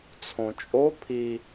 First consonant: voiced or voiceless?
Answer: voiceless